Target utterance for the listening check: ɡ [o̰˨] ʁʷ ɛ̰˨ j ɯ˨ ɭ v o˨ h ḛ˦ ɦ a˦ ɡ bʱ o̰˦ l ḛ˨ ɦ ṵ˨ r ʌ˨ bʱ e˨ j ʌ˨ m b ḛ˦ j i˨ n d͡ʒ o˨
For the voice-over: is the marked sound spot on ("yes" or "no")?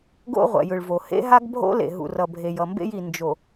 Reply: no